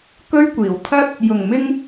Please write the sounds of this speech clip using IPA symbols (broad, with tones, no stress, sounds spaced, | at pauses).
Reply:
k ɵ˥ ɥ kʷ iː˨˩ w t̪ʰ ɐ˥ t̚ | j ʊ˨˩ ŋ m ɪ˧ ŋ